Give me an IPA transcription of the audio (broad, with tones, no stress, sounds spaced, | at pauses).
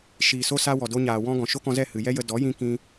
ʃ iː˨ s o˧ s a˧ w ɔ˨ d o˧ ɲ aː˨ w ɔ̃˧ ɡ ɔ̃˨ ʃ o˦ k ɔ̃˧ z ɛ˦˨ h ɨ˨ j ɛ˦ j ə˧ d ɔ˨˦ j ĩ˧ k ĩ˧